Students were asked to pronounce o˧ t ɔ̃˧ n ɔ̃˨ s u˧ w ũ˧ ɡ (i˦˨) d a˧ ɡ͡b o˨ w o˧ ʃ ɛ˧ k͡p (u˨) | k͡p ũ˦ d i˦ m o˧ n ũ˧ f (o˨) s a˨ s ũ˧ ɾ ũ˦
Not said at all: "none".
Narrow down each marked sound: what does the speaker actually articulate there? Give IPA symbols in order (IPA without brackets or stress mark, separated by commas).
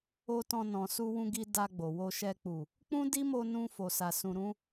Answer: i˧, u˨, o˨